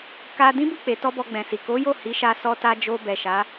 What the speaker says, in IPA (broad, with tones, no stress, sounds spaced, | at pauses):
k a˧ d ĩ˦ b u˦˨ k͡p e˨ t ɔ˧ b ɔ˧ ɡ͡b ɛ̃˨ s i˨ k o˨˦ j o˦˨ h i˨˦ ʃ a˧ s ɔ˧ t a˧ d͡ʒ o˧ b ɛ˨ ʃ a˨˦